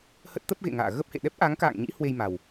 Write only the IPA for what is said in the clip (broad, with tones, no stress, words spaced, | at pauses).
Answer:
hə˦˥t̚t̪ə˦˥p̚ ɣḛ˧˨ŋa̰ː˧˨ ɣə˦˥p̚hḛ˧˨ ɗɛ˦˥p̚ʔa˨˦ŋka̰ː˧˨ŋɲḭ˧˥ hwe˧jma˨˩w